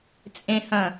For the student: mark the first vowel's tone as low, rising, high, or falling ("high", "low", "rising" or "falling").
low